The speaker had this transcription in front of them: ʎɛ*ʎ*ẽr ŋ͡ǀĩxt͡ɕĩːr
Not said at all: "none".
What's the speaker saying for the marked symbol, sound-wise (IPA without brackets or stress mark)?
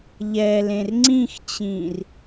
l